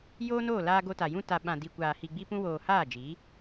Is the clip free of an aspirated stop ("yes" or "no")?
yes